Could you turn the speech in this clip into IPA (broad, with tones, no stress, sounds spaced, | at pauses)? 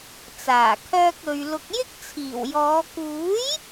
t͡s aː˨˩ kʰ œː˧ k̚ ɵ˨ ɥ l ʊ˨ k̚ j ɪ˥ k̚ t͡sʰ iː˨˩ w j ɔː˨˧ k uː˨˥ j